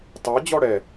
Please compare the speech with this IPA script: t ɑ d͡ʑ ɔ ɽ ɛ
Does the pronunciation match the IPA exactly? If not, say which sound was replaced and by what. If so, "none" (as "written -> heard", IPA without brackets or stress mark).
none